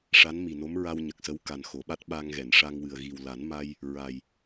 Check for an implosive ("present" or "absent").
present